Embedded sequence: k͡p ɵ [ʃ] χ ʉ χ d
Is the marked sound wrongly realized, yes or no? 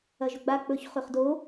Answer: yes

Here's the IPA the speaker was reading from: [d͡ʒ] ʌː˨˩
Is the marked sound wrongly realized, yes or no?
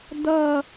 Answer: yes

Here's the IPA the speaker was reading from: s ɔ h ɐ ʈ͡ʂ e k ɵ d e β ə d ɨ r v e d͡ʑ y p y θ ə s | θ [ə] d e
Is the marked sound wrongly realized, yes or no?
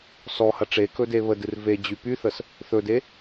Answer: yes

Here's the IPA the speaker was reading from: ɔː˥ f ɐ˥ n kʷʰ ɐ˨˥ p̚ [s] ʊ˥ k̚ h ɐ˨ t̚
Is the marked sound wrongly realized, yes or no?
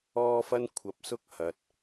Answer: no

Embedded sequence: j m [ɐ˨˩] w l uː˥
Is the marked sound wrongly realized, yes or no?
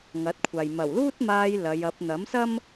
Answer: no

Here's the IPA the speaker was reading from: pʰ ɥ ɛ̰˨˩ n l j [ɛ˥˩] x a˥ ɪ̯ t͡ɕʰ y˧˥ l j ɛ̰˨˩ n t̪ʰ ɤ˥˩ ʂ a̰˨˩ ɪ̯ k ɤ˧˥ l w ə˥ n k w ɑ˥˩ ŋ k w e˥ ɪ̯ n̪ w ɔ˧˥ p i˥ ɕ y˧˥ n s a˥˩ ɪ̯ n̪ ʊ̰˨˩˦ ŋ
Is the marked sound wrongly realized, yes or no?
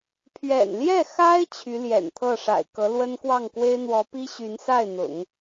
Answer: no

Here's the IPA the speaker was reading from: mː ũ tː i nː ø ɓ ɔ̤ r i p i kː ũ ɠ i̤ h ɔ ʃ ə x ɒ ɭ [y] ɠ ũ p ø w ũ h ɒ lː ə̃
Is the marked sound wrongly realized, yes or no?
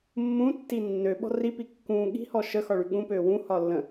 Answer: no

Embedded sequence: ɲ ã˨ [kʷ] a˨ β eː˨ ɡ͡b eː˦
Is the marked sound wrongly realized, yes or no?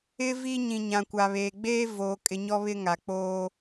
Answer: no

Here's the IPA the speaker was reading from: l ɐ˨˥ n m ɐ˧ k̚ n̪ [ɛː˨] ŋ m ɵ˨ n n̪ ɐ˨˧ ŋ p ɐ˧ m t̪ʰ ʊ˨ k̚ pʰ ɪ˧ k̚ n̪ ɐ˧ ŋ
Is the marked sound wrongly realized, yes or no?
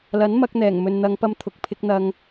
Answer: yes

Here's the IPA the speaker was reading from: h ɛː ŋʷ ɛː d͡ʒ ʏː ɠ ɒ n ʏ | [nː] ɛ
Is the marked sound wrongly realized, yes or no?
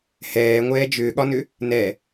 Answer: yes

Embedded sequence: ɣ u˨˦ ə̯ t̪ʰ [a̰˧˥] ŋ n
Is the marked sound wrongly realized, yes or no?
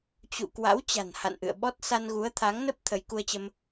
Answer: yes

